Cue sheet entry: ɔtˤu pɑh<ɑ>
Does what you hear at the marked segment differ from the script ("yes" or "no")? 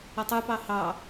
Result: no